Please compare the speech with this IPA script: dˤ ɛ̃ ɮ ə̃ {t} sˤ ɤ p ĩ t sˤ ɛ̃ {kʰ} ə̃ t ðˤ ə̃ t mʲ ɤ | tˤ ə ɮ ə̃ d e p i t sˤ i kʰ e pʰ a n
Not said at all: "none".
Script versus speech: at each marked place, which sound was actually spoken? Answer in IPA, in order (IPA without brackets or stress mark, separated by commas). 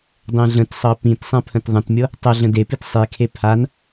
t, pʰ